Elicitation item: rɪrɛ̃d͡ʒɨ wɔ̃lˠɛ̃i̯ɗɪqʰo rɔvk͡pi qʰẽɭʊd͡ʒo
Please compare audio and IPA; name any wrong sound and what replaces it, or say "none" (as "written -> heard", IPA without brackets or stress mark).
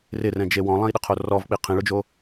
ɨ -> e